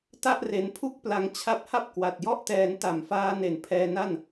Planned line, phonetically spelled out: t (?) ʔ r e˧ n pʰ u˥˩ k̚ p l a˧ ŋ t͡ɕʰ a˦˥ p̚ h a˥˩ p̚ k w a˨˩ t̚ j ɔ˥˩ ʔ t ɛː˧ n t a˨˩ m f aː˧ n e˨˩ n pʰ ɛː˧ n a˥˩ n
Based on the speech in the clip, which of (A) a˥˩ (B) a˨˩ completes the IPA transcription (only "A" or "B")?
A